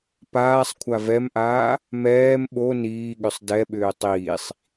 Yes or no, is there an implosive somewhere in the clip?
yes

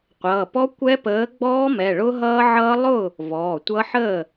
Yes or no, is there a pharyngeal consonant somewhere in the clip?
yes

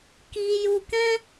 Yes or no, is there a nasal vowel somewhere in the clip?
yes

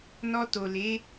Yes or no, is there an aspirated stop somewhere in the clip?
no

